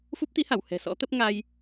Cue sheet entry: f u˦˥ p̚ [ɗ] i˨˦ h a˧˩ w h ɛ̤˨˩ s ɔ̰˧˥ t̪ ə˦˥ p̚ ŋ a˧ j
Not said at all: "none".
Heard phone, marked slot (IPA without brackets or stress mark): t̪